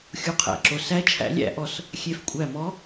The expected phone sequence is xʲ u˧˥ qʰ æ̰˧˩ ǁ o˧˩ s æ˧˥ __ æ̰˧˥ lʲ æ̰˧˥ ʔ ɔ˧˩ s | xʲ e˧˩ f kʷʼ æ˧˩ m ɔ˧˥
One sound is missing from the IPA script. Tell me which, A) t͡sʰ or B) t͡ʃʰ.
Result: B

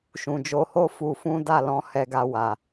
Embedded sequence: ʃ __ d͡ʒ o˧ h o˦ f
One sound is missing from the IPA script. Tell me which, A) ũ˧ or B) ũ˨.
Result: B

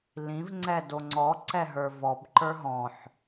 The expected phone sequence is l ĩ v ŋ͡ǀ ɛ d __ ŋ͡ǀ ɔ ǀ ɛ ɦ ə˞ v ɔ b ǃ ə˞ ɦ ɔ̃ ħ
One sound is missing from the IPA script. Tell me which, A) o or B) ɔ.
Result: A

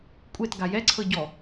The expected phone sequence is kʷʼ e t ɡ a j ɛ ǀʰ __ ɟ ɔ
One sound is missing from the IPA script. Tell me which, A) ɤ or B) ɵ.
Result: A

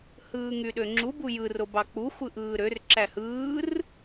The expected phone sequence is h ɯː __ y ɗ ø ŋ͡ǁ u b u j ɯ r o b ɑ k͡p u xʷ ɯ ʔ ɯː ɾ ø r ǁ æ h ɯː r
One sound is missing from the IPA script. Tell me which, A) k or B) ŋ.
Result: B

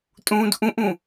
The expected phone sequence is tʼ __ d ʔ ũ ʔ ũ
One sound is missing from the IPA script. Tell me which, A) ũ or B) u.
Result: A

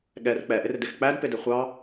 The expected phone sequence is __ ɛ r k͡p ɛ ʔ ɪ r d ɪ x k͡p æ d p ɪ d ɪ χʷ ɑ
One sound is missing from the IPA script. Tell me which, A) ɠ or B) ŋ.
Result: A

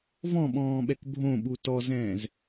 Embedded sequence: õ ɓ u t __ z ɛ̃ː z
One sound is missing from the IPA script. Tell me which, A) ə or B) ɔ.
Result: B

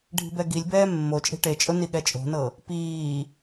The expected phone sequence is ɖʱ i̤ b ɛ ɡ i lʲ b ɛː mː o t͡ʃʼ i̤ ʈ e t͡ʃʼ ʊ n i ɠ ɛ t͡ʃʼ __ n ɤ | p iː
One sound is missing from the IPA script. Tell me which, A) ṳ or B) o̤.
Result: B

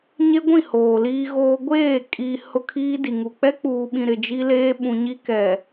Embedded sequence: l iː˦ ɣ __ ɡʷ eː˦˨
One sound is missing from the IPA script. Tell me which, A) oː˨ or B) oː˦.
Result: B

